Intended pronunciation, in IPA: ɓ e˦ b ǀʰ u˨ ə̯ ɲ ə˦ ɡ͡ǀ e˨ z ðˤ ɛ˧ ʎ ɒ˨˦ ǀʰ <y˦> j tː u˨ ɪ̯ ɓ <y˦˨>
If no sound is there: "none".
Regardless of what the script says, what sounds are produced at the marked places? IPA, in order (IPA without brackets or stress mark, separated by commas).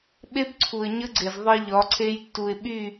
e˦, y˦˨